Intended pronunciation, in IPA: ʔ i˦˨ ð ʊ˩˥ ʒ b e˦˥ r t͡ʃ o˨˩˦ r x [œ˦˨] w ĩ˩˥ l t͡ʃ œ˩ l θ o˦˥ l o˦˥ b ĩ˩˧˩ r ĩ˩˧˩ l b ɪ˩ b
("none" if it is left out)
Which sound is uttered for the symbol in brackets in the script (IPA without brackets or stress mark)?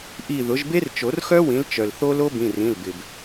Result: œ˦˥